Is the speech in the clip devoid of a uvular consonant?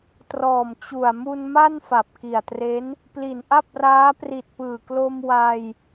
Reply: yes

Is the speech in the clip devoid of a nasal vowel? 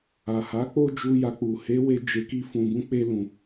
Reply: no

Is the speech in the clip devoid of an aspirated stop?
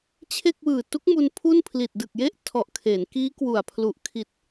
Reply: no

